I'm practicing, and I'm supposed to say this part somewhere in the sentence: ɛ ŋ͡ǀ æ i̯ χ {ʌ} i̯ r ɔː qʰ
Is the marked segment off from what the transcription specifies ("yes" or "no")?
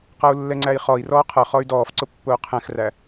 yes